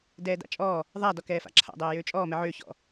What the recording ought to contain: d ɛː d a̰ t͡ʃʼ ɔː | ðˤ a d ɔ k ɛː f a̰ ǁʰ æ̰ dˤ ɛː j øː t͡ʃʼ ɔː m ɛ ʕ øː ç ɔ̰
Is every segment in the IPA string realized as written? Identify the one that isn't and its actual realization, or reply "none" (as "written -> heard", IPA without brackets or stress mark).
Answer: æ̰ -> a̰